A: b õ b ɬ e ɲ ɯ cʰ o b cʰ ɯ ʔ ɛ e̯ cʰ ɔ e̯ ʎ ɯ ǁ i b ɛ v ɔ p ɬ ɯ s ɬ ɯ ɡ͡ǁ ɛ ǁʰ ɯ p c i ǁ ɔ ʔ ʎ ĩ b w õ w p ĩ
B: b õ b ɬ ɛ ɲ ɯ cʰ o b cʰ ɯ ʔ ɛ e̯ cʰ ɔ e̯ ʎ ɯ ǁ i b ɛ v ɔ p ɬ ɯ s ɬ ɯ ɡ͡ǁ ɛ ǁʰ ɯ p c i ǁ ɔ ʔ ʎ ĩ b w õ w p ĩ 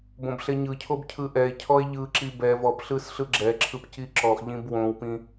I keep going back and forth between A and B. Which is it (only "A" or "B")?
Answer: A